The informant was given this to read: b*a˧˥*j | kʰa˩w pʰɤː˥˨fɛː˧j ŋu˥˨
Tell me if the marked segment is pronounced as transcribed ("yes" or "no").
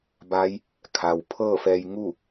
yes